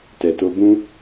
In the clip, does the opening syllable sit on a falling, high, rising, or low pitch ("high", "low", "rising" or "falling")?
low